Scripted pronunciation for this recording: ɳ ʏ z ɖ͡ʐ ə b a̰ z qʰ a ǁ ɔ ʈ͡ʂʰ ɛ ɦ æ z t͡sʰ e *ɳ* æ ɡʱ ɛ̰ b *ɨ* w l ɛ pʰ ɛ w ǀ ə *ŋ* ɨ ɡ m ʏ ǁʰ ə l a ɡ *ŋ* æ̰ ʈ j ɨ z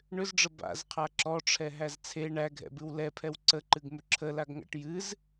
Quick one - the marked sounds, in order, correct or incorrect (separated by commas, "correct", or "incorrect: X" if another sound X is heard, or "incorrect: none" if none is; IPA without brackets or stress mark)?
correct, correct, incorrect: ǃ, correct